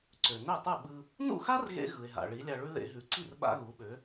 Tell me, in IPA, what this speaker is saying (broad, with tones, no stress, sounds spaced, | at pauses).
ǀ ø˩ n ø˥˩ tˤ ɯ˥˩ ɓ ɯ˧ | n ṵ˥˩ x a˥ r ɣ ḛ˧ ɣ ɯ˩ e̯ ɦ a̰˩ ɭ i˩˥ lʲ a˧ ɭ ʉ˥ ð ḛ˧ ɦ ʉ˩˥ ǀ i˥˩ r ɓ a̰˥ ɣ u˩˥ ɓ ø˩˥